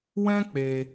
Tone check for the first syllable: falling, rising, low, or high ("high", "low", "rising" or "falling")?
high